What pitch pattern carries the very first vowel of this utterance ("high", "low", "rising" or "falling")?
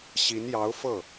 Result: rising